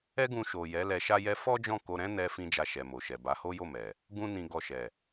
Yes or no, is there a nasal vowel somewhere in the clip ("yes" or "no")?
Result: yes